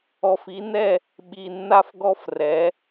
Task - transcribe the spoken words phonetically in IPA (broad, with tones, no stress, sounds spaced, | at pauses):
ɔ˨ f i˨˦ n ɛ˦˨ | ɓ i˨ nː a˦ f ɡ ɔ˦ f r ɛ˨˦